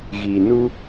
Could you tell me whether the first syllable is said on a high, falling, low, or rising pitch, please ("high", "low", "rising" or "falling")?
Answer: low